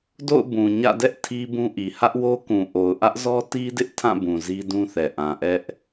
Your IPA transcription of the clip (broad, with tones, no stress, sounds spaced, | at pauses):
d o̰˦˨ ʊ̯ b ũ˨ ɲ ä̰˦˨ d ɛ˦ ʔ tʰ i˦ b ũ˦ ʔ i˨ h ä˦ ʔ w o˦ k ũ˨ ʔ o˨ ʊ̯ ʔ ä˦ ʔ z ɔ˦ t i˦ d ɪ˦ ʔ tʰ ã˦˨ b ũ˨ z i˦ d ũ˦ θ ɛ˨ ʔ ã˨ ʔ ɛ˦ ʔ